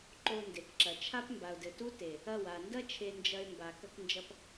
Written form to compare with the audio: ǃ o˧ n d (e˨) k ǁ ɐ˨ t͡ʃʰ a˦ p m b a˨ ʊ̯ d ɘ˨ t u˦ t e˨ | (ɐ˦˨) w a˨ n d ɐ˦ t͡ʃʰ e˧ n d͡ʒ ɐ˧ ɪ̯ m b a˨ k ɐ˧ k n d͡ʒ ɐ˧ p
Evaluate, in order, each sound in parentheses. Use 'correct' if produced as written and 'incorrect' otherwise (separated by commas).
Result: correct, correct